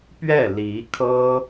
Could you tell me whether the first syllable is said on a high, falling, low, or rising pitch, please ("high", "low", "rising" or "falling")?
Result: falling